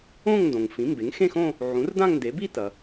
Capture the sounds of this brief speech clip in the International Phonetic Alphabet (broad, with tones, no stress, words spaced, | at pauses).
õ˥˧ŋndõ˩ŋ fĩ˩˥mbe˩˥ŋ xẽ˥˧xõ˥˧ | ʕũ˩˥rdã˥˧ŋnde˩˥ bi˥˧tɐ˩